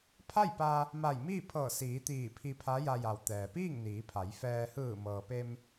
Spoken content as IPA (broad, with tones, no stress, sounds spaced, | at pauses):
pʰ a˥˨ j p a˧ | m a˧˩ j m iː˥˨ pʰ ɤː˧˩ s iː˩˧ t̪ iː˧˩ pʰ i˧ pʰ a˧˥ j a˧ j a˩ w t̪ ɛː˩ p iː˥˨ ŋ n iː˩˧ pʰ a˩˧ j f ɛː˧ h ɯː˧˩ m ɤː˩ p e˧ m